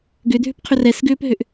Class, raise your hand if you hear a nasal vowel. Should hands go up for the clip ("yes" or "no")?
no